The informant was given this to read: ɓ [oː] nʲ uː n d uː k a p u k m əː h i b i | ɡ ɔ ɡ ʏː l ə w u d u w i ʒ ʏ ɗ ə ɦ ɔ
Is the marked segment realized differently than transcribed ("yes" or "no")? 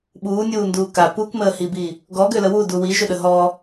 yes